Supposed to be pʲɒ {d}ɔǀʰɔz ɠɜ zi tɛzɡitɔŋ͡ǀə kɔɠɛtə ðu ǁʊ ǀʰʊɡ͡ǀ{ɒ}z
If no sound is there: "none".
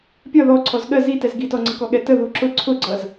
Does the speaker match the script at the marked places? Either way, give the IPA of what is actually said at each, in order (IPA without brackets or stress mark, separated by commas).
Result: ð, ʌ